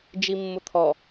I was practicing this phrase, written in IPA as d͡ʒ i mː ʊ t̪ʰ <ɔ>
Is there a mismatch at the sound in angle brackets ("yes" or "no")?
no